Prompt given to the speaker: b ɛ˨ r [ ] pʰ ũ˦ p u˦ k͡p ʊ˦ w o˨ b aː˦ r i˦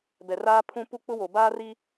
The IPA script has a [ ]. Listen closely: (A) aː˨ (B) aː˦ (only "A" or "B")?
B